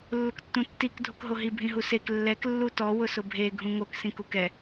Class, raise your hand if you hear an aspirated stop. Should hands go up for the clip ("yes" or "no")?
no